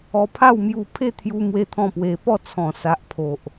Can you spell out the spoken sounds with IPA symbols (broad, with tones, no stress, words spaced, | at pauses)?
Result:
ɔ˧pʰa˥˧wmju˧ pʰe˥˧t̪ʰju˧ mwe˦t̪ʰɔ̃˥˧pwe˧ pɔ˥˧t͡sʰɔ̃˨˩ sa˨ʔpʰo˨ʔ